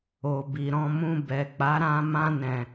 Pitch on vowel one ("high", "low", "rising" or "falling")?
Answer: low